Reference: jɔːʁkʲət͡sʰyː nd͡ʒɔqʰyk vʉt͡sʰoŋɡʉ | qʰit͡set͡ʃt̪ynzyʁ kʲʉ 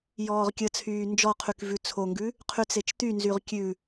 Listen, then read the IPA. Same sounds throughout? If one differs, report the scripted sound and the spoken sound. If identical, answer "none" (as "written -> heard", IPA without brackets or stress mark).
i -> y